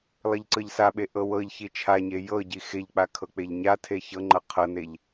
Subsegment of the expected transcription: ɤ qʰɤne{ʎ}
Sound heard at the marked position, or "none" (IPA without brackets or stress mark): ʎ